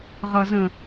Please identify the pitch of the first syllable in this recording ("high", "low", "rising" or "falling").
low